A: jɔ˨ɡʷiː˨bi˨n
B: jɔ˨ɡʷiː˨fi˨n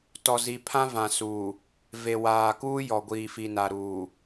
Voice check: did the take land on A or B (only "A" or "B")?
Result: B